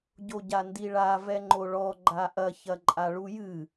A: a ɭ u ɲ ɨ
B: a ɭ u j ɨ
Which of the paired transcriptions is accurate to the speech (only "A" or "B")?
B